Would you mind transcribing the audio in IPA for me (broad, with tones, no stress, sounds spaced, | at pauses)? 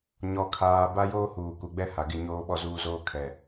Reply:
ɲ ɔ˦ kʰ aː˦ b a˦ j oː˦ h uː˨ k u˨ ɡ͡b ɛ˦ h a˨ ɡ ɪ˦˨ ɲ oː˦ ɓ ɔ˦ z uː˦ z oː˦ kʰ ɛ˨